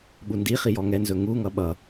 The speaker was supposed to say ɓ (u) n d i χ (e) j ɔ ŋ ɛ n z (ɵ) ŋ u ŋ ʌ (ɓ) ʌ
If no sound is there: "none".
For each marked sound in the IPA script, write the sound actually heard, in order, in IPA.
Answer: u, i, ɵ, ɓ

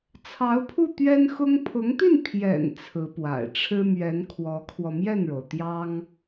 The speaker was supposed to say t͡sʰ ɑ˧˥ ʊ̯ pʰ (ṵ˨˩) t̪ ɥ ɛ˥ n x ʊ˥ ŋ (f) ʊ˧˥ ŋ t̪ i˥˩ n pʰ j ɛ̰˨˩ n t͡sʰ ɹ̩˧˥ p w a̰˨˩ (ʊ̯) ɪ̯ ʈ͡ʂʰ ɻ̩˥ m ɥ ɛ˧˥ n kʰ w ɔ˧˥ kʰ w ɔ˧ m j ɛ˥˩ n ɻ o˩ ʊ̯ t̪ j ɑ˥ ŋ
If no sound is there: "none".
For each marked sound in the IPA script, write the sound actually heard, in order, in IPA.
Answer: u˥˩, pʰ, none

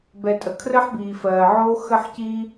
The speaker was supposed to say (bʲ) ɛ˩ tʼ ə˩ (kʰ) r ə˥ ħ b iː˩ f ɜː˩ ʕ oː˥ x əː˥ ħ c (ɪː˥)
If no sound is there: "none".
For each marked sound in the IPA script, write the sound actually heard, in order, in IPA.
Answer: b, kʰ, iː˥

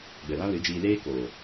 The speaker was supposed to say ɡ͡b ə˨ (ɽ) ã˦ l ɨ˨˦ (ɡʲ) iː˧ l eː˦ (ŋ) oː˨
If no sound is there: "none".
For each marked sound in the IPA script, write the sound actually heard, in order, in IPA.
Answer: l, d͡ʒ, k

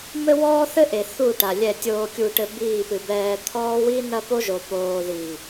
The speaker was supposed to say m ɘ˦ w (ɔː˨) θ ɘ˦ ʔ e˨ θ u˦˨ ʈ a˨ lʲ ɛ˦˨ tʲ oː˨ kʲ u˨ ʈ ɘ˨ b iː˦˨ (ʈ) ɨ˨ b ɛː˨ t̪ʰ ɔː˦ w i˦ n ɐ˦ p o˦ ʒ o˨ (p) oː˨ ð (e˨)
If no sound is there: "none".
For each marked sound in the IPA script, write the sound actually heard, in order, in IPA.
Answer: ɔː˦, p, p, i˨

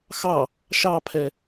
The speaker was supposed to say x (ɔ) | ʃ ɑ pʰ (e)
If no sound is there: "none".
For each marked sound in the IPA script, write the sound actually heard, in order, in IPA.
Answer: ɑ, ɛ

